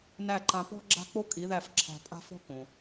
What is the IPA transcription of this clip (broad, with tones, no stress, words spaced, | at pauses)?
næ˥˩ǃã˧ pɔ̤˥ɡ͡ǁa̤˥ k͡po˥kʼi˩˥ ðæ˥˩fǁʰæ̤˧pʼa̤˥fɔ̤˥ kõ˩